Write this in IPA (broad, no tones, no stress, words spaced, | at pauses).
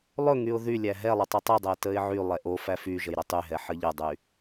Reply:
lˠɵŋyʊ̯ ðylʲæ ɦɛlˠə tˤɵtˤydˤɛ təɪ̯ʕylˠɛ ʔo fæfyʒəj ɾətˤyɦɛ ħəʎədˤy